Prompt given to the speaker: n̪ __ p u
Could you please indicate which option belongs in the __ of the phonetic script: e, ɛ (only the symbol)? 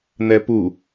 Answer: ɛ